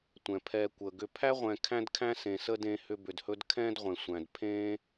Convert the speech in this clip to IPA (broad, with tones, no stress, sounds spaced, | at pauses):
tʷ ɛ̃˩ pʰ ɛ˨ kʷ əː˩ ɡ ʏ˨ pʰ æ˥ ʁʷ ɛ̃ː˨ kʰ æ̃˥ d kʰ æ̃˥ s ẽ˨ s ə˥ d ẽ˦ h ʏ˦ b ʏ˨ d h ɵ˥ d kʰ ɛ̃ː˦ d ʁʷ ẽ˩ sʷ æ̃˩ d pʰ ẽː˥